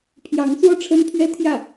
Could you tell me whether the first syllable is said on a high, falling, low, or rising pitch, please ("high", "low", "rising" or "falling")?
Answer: rising